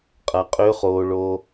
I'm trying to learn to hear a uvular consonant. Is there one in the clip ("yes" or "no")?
yes